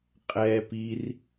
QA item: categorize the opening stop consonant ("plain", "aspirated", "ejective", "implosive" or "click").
ejective